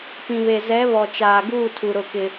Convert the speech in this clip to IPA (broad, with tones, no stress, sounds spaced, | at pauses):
p ĩ˨ β e˨ z ɛ˨˦ β ɔ˨ t͡ʃ aː˨ ɡ uː˦˨ tʰ u˨ ɾ ʊ˦˨ k ɪ˦